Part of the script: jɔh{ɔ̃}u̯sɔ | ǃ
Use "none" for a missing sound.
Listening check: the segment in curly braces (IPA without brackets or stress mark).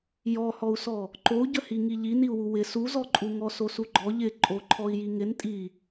ɔ